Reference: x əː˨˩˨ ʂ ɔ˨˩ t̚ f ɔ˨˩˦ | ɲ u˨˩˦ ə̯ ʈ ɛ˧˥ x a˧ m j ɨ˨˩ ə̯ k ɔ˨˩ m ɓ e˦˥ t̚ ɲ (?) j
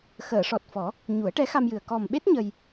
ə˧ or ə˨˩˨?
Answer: ə˧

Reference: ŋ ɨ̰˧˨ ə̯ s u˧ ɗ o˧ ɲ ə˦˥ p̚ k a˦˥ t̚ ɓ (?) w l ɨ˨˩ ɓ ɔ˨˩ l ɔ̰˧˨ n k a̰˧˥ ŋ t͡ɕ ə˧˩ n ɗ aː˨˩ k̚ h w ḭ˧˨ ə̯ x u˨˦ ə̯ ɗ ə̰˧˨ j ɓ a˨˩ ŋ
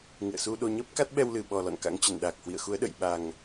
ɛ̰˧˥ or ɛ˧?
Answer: ɛ˧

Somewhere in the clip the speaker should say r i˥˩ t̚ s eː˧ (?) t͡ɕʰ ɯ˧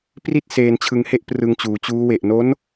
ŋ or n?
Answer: n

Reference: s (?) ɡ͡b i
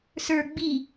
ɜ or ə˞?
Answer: ə˞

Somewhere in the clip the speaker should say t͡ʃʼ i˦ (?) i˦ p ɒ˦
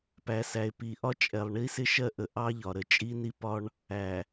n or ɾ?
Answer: n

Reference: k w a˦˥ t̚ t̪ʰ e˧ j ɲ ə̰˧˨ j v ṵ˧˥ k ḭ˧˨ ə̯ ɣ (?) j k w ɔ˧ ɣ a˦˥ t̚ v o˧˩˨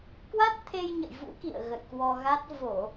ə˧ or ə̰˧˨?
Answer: ə̰˧˨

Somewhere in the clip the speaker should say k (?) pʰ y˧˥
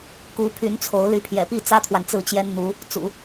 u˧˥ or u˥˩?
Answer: u˧˥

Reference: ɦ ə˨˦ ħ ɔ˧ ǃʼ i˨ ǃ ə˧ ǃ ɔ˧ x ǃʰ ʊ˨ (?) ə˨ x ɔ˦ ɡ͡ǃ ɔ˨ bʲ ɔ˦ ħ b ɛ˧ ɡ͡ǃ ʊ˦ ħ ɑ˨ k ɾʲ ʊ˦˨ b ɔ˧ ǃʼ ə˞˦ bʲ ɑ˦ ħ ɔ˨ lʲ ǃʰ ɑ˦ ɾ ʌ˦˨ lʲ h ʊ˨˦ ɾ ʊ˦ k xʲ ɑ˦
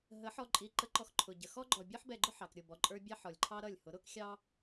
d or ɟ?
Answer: ɟ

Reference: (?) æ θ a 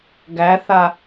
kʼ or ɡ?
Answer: ɡ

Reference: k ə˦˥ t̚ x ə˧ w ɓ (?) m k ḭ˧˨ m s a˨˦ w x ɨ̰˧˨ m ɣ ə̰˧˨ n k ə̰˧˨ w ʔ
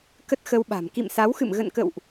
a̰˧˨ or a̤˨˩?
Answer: a̤˨˩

